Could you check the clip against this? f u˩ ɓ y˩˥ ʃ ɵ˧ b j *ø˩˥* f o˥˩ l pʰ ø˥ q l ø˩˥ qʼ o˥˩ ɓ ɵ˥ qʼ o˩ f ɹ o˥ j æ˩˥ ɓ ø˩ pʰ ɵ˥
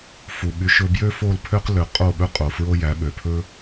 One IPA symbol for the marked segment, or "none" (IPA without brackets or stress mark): ø˥